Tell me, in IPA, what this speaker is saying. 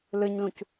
l ɯ ɲ l ũ c

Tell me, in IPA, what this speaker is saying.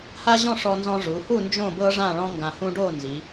h a˥ ʑ ɔ̃˥˧ ʂ ɔ˧ n z ɔ̃˧ ʐ u˩˧ h u˥˧ n d͡ʒ õ˥˧ b ɤ˥ ʐ ã˥˧ ɭ ɔ̃˥ ŋ ɡ ã˧ h ũ˥ ɖ o˥˧ n z i˩˧

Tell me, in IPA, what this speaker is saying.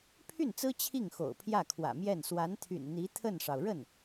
pʰ y˥˩ n t͡s ɹ̩˥ t͡ɕʰ i˥˩ ŋ x o̰˨˩ ʊ̯ pʰ j ä˥˩ kʰ w ä̰˨˩ m j ɛ˥˩ n s w a˧˥ n t̪ʰ y̰˨˩ n n̪ i˧˥ t̪ʰ ə˥˩ n ʂ ɑ˩ ʊ̯ ɻ ə˥˩ n

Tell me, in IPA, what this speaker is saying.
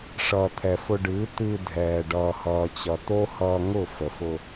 ʂ ʌː˨ t̪ʰ ɛ˨ f ʊ˧ ɖ ɨː˨˦ t̪ ɨ˧ dʱ ɛː˨ ɖ ʌː˨ h ʌː˨ t͡ɕ ʌ˨ t̪ o˦ h ʌː˧ ŋ ʊ˦˨ f ə˨ f ʊ˧

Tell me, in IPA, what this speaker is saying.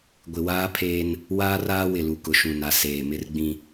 ɡʷ ɪ˨ w aː˦ pʰ eː˦ n | w aː˦ r aː˦ w ɪ˨ l u˨ k ʊ˨ ʃ ũ˨ n a˨ s eː˨ m ɪ˦ r ɡ͡b ĩ˦

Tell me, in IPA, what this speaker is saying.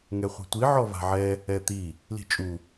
ŋ ɛ χʷ i̤ tʷ i ʕ ɔ v a̤ ʕ ɛ | ɛ t̪ i | l i̤ t͡ʃʼ u

